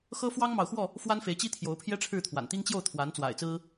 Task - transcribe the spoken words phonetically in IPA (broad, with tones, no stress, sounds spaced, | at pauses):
x ɤ˦ f w ɑ˦ ŋ m ɑ˨ ʊ̯ x w ɔ˥˨ | f w a˦ n f e˨˦ ɪ̯ t͡ɕ i˦ t̪ʰ j o˨˦ ʊ̯ pʰ j ɛ˦ ʈ͡ʂʰ ɻ̩˥˨ t̪ʰ w a̰˨˩ n t̪ i˦ ŋ t͡ɕ j o˥˨ ʊ̯ t̪ʰ w a˨˦ n t͡s w a̰˨˩ ɪ̯ t͡s ɹ̩˦